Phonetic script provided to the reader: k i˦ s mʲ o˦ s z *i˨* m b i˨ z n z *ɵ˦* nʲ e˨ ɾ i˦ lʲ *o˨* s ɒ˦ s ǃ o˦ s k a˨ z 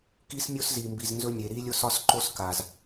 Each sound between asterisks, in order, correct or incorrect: correct, correct, incorrect: o˦

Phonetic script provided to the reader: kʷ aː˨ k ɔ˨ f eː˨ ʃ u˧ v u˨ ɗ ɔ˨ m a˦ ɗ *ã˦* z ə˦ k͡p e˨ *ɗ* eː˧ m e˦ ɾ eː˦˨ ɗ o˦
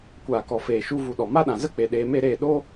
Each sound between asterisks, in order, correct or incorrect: incorrect: ã˨, correct

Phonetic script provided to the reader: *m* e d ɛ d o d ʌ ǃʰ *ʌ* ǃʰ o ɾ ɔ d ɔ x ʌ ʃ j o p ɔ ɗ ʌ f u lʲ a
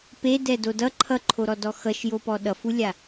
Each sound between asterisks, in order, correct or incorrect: incorrect: p, correct

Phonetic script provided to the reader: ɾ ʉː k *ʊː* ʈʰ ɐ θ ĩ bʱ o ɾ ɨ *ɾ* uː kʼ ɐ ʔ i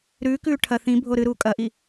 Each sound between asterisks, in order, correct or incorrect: incorrect: ʉː, correct

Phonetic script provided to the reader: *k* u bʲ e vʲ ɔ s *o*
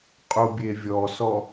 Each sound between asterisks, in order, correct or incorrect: incorrect: qʼ, incorrect: ɔ

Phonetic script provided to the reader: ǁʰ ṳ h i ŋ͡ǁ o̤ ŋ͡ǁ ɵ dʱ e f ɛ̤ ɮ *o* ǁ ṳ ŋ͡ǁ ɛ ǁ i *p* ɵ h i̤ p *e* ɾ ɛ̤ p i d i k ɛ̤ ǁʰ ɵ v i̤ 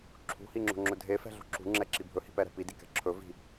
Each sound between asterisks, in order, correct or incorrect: incorrect: o̤, incorrect: bʱ, incorrect: ɛ

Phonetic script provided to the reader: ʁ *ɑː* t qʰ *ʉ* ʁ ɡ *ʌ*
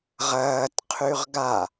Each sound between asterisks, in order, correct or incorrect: incorrect: ɐː, correct, incorrect: a

